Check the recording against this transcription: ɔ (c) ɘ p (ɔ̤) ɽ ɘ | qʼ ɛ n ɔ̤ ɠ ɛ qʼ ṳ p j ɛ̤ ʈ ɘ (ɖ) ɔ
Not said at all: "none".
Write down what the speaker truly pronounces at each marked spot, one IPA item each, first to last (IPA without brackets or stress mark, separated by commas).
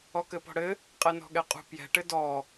k, ɔ̤, d